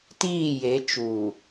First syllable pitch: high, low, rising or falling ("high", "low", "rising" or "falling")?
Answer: falling